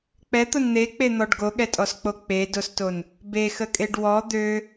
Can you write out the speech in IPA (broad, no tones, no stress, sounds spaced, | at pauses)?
k͡p ɛ t̪ o n n̪ e k͡p e n̪ ɔ ɖ ɡ o ɠ ɛ tʼ ɔ s k͡p o k͡p e d o s t o n | b e x ə kʼ e ɖ w ɔ d̪ ø